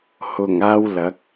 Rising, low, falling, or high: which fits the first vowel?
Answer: low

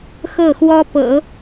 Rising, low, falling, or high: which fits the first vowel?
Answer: falling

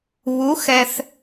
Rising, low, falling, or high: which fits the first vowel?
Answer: rising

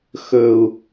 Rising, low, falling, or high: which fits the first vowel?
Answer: low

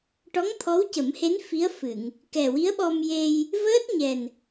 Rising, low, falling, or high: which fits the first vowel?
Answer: rising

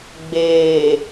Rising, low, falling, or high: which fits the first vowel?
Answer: low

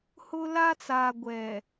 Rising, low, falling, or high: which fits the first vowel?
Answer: high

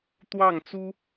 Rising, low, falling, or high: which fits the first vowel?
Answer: falling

